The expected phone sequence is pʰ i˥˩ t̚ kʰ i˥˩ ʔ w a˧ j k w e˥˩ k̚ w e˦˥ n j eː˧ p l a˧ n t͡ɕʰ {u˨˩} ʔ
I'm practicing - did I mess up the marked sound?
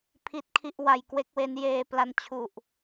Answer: no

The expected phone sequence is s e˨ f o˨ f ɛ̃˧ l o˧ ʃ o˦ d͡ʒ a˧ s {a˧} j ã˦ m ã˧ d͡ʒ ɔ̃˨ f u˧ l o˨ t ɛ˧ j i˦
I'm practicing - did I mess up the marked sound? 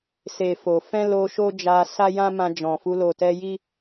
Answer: yes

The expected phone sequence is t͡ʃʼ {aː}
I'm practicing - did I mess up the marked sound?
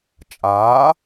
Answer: no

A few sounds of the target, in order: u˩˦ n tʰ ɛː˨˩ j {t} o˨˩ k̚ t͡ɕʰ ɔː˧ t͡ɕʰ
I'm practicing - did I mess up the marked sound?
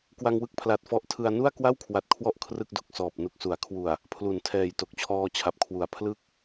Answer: no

